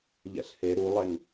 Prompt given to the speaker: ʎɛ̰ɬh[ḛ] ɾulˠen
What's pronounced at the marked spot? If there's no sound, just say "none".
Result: e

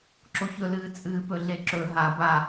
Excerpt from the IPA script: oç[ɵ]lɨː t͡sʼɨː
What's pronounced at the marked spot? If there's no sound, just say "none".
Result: ɵ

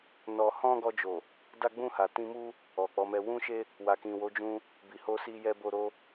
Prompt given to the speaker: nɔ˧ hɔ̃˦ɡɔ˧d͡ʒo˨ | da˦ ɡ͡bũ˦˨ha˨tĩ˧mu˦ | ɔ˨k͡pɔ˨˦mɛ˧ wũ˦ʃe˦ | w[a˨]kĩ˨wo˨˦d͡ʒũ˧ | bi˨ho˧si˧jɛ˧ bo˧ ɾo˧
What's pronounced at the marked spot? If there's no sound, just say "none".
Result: a˨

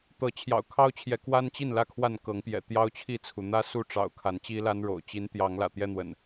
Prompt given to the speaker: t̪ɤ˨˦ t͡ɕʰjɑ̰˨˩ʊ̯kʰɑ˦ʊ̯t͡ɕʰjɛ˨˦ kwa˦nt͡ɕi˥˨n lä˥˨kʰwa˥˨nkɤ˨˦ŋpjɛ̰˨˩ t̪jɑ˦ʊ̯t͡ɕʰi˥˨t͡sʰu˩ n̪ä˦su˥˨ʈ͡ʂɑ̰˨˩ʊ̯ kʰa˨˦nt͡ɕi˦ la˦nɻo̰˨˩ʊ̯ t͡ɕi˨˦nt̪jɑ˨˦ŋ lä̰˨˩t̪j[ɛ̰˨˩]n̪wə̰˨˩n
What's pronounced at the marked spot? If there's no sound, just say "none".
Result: ɛ˦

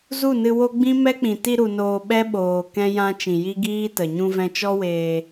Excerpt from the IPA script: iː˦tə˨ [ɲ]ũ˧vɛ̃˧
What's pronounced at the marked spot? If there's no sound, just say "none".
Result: ɲ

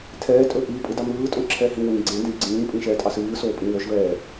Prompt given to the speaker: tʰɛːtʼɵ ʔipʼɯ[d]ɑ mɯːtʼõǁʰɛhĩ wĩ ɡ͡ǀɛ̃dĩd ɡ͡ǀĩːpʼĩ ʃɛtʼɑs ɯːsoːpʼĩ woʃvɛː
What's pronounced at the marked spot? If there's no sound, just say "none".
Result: d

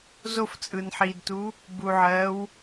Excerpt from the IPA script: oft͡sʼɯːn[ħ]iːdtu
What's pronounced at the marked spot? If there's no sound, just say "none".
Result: ħ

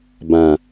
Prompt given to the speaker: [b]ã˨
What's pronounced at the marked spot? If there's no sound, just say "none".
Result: b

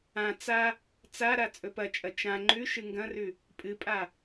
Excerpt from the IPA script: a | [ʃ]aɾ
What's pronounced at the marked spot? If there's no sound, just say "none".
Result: t͡s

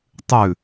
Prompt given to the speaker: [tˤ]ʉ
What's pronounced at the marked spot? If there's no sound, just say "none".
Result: tˤ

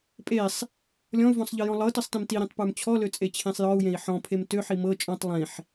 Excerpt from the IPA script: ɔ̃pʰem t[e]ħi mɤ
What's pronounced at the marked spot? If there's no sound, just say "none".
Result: ø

